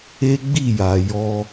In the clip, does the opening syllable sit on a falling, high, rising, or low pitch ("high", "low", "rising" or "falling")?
high